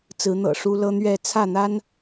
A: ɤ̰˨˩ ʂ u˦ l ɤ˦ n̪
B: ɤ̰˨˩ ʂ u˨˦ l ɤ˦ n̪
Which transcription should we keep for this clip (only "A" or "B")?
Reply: A